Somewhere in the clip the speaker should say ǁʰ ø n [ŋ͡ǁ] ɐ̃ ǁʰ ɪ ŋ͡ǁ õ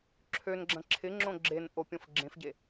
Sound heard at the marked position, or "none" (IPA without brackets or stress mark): ɡ͡ǁ